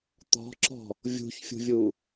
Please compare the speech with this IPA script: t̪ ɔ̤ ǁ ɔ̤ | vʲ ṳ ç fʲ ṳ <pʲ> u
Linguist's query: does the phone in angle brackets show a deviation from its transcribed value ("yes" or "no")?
yes